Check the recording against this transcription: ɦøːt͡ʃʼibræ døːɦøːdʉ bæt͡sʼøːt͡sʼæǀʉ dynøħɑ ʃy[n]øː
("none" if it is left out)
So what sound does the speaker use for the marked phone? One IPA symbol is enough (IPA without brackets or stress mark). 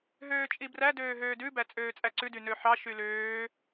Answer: l